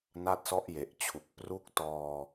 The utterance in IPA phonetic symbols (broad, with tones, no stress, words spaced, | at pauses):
na˦˥t̚sɔ˦˥ʔje˨˩ʔt͡ɕʰu˨˩k̚ pru˦˥k̚tɔː˧